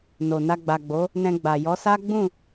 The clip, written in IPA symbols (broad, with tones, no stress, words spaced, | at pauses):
no˨ na˧ɡ͡ba˨ɡ͡bo˨˦ | nɛ̃˧ɡ͡ba˨jɔ˨˦ sa˦ɡ͡bũ˦˨